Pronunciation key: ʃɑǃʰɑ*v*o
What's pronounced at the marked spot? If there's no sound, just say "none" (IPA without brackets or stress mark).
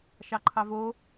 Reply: v